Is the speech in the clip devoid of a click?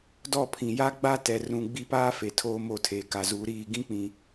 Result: yes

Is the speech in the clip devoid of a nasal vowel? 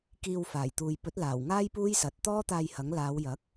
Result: yes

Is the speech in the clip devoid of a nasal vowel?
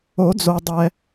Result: yes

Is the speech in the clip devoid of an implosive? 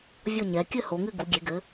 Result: yes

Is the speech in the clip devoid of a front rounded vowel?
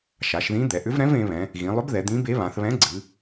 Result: no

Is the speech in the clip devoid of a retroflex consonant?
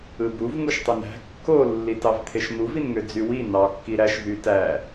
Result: yes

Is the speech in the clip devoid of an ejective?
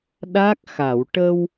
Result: yes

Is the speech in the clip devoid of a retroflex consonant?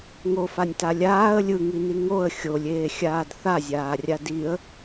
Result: yes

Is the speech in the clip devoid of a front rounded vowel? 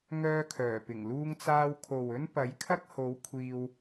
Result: no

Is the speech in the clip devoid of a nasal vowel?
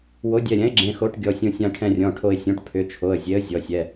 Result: no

